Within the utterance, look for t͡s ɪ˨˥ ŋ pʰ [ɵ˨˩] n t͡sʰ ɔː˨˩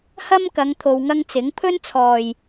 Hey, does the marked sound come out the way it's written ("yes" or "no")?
no